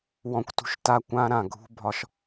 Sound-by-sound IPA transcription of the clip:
wɔ̃˨kʷtṳ˨ʃ ta˧kʷã˧ ɾã˨ɡʱṳ˦bʱɒ˧ʃ

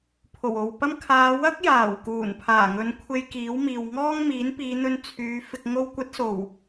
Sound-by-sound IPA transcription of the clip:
pʰo˨˩wo˨wpɐ˥m kʰaː˨˧wɐ˥k̚jaː˨˩w kuː˨˩npʰaː˨˩ŋɵ˨˧nkʷʰe˧j kiː˨˥wmiː˨wŋɔː˥ŋ miː˨˥npiː˨˧n̪ɵ˧n t͡sʰyː˨˧ fɪ˨k̚ŋo˧wkʷɐ˨˥t̚ so˨˩w

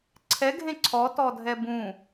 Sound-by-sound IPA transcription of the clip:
ǀʰɛɡʱẽ ǀʰɔtɔdʱɛ bũ

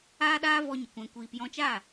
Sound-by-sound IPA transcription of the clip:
aː˦ɗaː˦ vɔ˧ɲə˨ kʷɛ̃˧kʷiː˧p jɔ̃˧t͡ʃaː˦˨

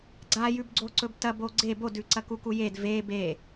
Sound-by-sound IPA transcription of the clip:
ɡ͡ǀajʉbɡ͡ǀo ǀɵbtɐb oɡ͡ǀe bodʉ ǀɐkukujed ve be

